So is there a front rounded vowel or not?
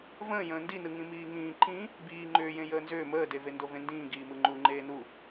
yes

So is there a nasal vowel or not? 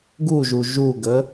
no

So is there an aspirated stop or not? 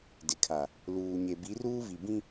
yes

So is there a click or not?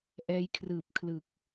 no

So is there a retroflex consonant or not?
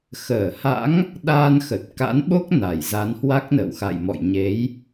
no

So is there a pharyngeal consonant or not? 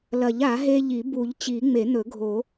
no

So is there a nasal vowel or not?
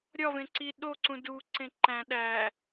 yes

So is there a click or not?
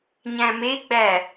no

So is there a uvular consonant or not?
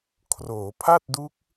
no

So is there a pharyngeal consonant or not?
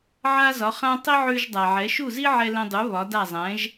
yes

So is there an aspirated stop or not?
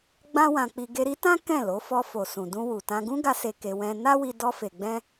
no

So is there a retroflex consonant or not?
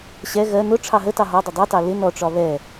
yes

